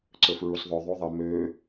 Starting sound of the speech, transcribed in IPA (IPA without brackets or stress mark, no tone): ǀ